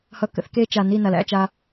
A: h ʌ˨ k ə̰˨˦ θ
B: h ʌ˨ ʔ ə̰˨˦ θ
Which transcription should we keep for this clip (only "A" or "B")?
A